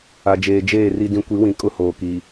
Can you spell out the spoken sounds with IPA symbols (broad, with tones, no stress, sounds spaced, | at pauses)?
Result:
a˨ d͡ʒ eː˨ d͡ʒ eː˦˨ r i˨ d ĩ˨ kʷ i˨˦ w ĩ˨ kʼ ʊ˦ h oː˨ k i˨